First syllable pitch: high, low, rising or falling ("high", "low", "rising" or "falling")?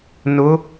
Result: rising